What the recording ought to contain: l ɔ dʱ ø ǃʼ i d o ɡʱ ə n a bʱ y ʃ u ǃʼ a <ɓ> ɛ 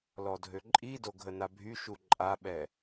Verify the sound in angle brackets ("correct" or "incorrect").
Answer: correct